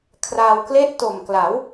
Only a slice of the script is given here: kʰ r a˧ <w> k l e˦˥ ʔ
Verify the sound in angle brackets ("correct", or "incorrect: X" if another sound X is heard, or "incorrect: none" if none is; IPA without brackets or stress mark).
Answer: correct